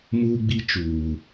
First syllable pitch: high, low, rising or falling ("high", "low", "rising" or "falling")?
high